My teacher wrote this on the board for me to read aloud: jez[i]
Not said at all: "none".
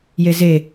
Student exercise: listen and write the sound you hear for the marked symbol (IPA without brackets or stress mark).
e